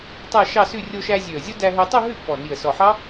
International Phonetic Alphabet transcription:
tˤ æ˥˧ ʃ ɑ˥˧ s ʉ˥˧ rʲ o˧ ʃ æ˧ zʲ ø˨˩ ə̯ zʲ o˦˥ d æ˧ ɦ ø˧ tˤ o˥˧ ɦ ʉ˥˩ pː ɔ˨˩ n i˨˩ ə̯ s ɔ˨˩ ħ ɑ˦˥

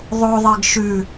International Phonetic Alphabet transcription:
ðˤ o ðˤ e ɡ ʃ ʉ

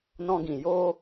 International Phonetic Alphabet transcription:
n ɔ̃˧ ɡ ĩ˨ j oː˦

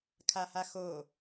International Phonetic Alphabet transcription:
kʰ a h a x o

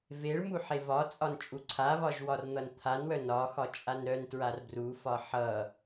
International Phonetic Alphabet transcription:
v e ɭ m u ħ e v ɒ t͡sʼ ɒ n t͡ʃʼ u ǀʰ a β ɒ ʒ w ɒ r n̪ ʌ n t̪ʰ a n w œ n ɒ x ɒ t͡ʃʼ a n ɾ œ n t ɹ a r b r u f ɒ ħ ʌ

